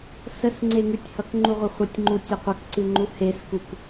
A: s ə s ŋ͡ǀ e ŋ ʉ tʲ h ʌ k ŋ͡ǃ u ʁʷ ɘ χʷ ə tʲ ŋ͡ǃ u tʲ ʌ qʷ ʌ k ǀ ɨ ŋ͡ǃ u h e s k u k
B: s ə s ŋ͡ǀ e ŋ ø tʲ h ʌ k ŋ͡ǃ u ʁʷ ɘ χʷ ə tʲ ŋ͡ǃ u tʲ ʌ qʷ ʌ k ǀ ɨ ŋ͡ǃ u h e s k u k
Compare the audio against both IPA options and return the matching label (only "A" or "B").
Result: A